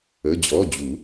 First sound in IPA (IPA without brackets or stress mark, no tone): ə